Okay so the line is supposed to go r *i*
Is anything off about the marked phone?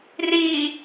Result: no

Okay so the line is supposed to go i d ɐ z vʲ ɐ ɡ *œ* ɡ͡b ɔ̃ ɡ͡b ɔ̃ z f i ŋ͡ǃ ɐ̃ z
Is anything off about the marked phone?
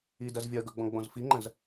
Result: no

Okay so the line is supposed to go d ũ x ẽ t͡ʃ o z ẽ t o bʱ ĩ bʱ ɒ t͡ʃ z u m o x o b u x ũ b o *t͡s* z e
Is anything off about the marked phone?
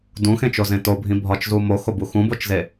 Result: yes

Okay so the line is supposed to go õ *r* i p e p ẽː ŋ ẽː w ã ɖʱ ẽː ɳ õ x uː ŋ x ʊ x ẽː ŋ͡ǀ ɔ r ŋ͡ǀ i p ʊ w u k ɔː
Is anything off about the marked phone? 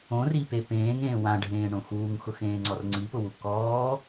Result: no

